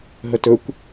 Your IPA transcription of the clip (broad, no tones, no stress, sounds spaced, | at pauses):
ɦ ə t ɵ kʷ